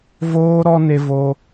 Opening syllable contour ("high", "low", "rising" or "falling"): high